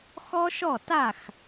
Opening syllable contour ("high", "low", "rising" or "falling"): high